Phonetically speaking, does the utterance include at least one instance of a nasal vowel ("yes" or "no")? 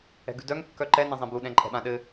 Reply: yes